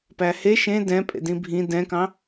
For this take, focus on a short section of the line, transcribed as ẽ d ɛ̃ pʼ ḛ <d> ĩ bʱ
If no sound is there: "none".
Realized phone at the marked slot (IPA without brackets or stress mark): d